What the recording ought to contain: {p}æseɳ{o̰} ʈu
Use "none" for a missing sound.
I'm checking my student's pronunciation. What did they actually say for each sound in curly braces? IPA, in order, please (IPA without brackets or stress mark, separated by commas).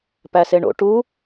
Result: p, o̰